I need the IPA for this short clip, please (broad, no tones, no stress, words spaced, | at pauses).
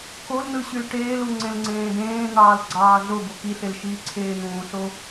kolnɯ ɕylʈeːlu ŋ͡ǀẽlŋ͡ǀẽːdẽːn̪ɑːl ɡ͡ǀɑːɮobo kiɬel ʃiːǀʰeːn̪ũːɬo